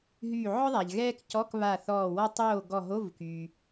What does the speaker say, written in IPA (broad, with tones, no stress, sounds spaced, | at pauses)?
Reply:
ɦ yː˧˩ ʕ ɔ˥ ðˤ a˩ ʎ ɣ ɛː˥ k c ɔ˧˥˧ k β a˧˩ θ ɔː˧˩ w ɔ˥ tˤ oː˥˨ ɡ ɔ˧˩ ɦ o˧˥˧ v k yː˩